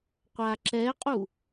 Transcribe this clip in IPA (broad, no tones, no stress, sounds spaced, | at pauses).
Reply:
qʷ a ǁ ɛ qʼ u